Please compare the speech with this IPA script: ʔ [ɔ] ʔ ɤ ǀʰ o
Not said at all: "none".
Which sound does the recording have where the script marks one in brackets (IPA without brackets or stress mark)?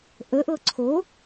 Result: ə